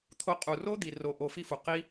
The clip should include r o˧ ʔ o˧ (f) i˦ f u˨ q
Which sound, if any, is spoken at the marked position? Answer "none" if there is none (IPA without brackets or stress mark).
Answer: f